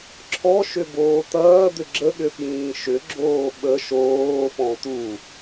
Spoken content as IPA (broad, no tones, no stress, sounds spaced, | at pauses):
ǁʰ ɔ ʃ ʏ b oː t̪ ɐː d̪ ʏ ɡ͡ǁ ə ɠ ʏ f j ĩː ʃ ʏ ɡ͡ǁ oː ɓ ə ʃ oː f ɔ̃ t̪ u